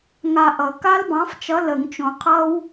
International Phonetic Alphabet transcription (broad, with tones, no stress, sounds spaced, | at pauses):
ŋ a˧ ʔ ʌ˨˩˦ k a˦˥ l b ɑ̃˨˥ f t͡ʃ ʌ˨˥ l ə˨˩˦ ŋ t͡ʃ õ˨˩˦ qʰ ʌ˦˥ w